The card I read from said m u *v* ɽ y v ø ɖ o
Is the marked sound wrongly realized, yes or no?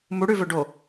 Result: yes